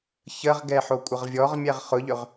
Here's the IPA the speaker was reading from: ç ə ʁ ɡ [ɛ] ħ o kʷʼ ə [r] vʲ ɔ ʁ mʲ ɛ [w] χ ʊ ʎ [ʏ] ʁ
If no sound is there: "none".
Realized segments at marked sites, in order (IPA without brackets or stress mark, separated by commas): ɛ, ʁ, ʁ, ʏ